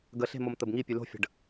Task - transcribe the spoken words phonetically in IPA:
ɡ ə ɬ e̤ m o m t̪ ə b ŋ i pʲ ʉ l o̤ fʲ ə̤ ɖ

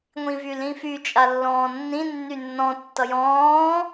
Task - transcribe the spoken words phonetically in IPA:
ŋʷ ĩ v y l ĩ f y t͡ʃʼ a lː ɔ̃ː nː ĩ nː y nː ɔ̃ tː ʌ j ɔ̃ː

